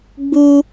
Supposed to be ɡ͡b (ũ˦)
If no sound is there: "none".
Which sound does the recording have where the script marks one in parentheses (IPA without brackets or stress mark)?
u˦